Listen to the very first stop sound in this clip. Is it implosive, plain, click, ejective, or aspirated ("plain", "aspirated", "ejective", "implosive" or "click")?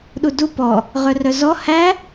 implosive